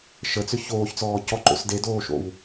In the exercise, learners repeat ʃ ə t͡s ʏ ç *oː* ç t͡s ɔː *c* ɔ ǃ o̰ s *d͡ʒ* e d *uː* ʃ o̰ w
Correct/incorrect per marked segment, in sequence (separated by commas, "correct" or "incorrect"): correct, correct, incorrect, incorrect